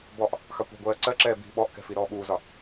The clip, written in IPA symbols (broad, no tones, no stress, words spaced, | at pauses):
bɔʔ | xɑkʷɛ̤ɡʷɜː ǀɜǁɛː bi̤ ɓɔʔkɛ̤ fiɾɔːɓuːzɒ